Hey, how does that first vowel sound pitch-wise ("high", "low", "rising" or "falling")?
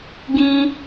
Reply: high